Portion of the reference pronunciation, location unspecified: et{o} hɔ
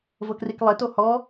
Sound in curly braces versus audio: correct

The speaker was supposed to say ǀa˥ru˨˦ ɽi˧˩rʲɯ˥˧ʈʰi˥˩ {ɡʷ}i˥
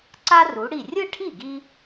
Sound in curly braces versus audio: incorrect: ɡ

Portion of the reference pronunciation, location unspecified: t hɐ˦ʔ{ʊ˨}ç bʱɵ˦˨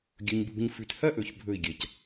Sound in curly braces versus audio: incorrect: ɵ˨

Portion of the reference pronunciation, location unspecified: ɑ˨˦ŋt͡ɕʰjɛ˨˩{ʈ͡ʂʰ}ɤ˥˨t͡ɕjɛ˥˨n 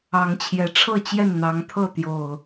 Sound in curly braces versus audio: correct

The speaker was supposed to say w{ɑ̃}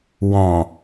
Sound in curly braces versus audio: incorrect: ɔ̃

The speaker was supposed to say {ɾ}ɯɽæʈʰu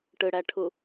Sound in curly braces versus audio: incorrect: ʈ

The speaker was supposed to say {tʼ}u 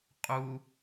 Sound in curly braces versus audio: incorrect: qʼ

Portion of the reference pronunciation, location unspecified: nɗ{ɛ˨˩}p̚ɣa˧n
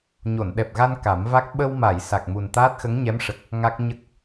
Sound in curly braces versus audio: correct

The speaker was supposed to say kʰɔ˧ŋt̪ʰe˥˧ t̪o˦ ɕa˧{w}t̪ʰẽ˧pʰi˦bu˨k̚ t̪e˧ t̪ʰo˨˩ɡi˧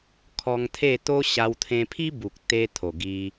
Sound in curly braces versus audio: correct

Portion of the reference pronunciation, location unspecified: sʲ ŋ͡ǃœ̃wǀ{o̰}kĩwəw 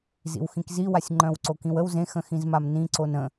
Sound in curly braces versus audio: incorrect: o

